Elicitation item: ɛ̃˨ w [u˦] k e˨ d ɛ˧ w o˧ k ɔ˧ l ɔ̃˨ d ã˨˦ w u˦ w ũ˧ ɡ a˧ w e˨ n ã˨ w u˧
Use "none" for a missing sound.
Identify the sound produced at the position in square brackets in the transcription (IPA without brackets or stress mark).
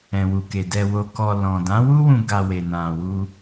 u˨